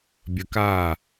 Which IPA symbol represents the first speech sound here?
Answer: bʲ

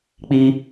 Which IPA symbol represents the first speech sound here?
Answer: k͡p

